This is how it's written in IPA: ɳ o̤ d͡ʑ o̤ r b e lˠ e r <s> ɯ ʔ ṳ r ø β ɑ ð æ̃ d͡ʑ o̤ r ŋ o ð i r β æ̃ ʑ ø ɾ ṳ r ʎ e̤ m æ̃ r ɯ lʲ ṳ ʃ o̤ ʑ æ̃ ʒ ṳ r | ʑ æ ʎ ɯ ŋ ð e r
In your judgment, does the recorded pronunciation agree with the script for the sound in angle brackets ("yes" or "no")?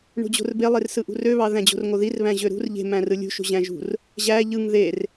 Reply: yes